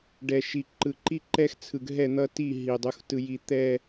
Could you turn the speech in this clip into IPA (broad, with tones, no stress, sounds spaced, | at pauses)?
ɖ ɛ˨ ʃ i˨ ǃ ɯ˨ ǃ i˦ ǃ ɛ˦ x t͡sʰ ɯ˨ ɡ ɦ ɛ˦˨ n̪ ʌ˦ t i˦˨ ɦ i˨ dˤ u˨ x t ɯ˨ j i˨ t̪ ɛ˨